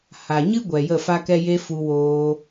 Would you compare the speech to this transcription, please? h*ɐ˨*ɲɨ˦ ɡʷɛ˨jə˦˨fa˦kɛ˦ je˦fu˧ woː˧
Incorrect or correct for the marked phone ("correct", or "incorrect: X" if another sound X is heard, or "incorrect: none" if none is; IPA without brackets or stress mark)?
incorrect: a˨